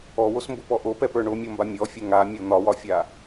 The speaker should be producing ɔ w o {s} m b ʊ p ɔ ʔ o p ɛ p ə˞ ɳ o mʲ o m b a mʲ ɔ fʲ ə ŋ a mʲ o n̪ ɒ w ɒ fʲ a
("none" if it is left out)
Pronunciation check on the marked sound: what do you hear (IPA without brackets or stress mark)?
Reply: s